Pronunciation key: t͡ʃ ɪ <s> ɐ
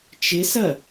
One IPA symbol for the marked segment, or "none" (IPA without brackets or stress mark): s